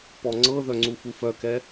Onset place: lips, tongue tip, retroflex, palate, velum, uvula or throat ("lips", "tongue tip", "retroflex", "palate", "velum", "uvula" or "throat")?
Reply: lips